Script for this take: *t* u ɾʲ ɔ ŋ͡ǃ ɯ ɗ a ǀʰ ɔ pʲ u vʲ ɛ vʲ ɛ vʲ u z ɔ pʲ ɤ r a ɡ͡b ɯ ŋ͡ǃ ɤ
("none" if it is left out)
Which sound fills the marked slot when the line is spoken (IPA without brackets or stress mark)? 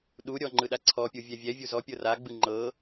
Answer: ɗ